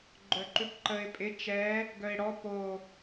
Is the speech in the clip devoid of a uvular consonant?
yes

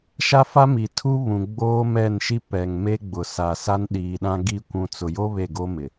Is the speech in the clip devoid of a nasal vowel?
no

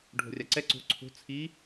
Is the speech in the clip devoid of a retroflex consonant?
no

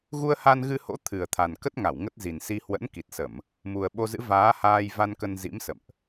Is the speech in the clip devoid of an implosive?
no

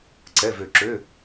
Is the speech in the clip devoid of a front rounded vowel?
no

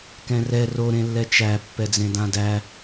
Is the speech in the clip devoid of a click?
yes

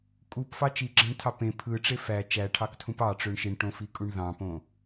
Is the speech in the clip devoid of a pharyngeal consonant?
yes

